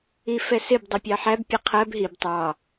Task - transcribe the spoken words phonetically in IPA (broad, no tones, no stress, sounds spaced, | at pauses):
i f ɛ s ɪ b dˤ ə pʲ ɑ ħ æ b pʲ ə qʰ ɜ b ɦ i b tˤ ɑ